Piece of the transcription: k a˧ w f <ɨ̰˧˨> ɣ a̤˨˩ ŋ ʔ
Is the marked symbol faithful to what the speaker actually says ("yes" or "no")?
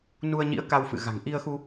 yes